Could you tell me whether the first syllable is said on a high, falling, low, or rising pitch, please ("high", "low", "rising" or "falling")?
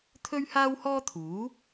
high